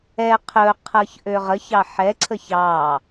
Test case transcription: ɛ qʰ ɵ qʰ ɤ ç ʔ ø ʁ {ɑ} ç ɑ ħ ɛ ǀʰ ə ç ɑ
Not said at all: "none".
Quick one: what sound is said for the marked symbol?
ə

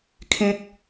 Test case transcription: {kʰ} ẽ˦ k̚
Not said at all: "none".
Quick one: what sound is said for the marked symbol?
kʰ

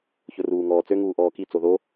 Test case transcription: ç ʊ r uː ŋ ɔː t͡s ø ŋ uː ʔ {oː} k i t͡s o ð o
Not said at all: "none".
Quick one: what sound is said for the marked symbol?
ɔː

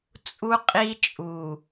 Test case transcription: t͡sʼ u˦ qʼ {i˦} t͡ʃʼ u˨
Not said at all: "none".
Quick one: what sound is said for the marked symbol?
i˦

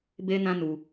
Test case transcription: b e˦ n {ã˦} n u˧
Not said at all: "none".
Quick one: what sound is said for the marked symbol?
ã˦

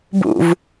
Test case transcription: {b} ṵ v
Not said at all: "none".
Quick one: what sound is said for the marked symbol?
b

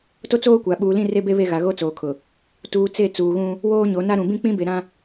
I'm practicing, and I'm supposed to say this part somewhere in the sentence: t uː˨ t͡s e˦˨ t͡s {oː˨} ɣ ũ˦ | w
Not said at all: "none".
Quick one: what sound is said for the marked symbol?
uː˨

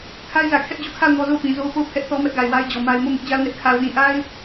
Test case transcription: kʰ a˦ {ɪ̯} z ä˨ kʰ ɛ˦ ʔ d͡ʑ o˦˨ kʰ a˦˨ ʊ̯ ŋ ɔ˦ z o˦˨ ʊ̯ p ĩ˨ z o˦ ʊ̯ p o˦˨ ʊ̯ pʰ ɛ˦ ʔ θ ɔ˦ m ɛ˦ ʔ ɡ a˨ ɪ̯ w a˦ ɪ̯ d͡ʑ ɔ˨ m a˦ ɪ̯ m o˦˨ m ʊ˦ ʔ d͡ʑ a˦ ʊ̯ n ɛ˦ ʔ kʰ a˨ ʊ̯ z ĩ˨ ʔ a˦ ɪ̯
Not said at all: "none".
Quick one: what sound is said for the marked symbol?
ɪ̯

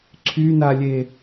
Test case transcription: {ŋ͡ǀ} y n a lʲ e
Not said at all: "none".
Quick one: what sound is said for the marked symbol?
ǀʰ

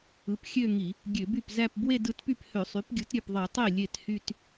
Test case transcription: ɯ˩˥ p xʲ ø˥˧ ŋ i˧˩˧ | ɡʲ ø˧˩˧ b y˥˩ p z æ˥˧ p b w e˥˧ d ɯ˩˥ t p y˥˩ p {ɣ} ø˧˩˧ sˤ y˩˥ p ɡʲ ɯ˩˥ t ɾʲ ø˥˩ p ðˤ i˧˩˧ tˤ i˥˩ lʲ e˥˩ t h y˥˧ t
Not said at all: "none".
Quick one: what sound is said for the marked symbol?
h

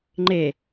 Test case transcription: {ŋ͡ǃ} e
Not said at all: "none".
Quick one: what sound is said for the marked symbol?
ŋ͡ǃ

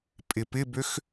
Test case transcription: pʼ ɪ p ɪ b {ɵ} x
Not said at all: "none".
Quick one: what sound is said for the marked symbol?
ø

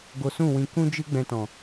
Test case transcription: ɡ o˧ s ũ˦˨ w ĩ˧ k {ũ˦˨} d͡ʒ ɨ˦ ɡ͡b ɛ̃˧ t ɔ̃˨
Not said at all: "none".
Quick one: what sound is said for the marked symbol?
ũ˦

